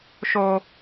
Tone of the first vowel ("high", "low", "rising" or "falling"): high